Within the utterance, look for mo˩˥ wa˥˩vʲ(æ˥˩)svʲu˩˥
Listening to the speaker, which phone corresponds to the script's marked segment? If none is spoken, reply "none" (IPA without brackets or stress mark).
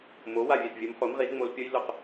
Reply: ɛ˥˩